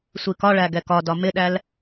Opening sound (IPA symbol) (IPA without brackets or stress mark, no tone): sʷ